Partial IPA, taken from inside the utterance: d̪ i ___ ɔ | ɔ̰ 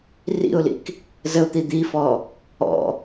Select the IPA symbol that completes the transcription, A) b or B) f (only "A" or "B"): B